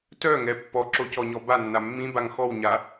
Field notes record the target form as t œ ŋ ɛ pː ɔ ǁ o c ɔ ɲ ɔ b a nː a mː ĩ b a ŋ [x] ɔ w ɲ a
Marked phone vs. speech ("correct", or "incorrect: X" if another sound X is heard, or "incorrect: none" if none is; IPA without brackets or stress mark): correct